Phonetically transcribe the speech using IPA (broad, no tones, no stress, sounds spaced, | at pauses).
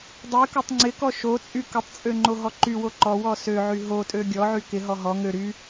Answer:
dˤ y k o tˤ ŋ͡ǀ ɪ k ɔ ʃ o t͡sʼ y k ə tˤ t͡sʼ ø ŋ͡ǃ o ɦ ɔ ǃ y w o ǃ ɔ w ɔ s ø ʕ y ɦ o tʼ ø ɡʲ ɔ ʕ y k ɪ ɦ ɔ ɦ ɔ ŋ ø ɾ y